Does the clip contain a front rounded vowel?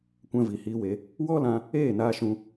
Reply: no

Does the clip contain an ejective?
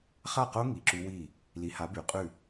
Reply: yes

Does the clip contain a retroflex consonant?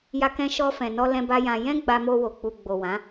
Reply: no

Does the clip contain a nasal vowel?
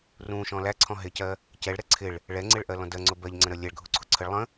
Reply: yes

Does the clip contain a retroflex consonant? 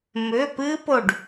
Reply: yes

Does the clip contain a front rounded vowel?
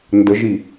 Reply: no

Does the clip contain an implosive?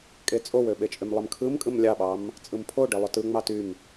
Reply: yes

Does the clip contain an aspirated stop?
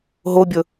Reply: no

